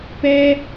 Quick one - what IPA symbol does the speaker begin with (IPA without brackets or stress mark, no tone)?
p